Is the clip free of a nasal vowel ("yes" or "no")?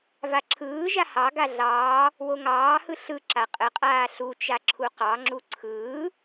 yes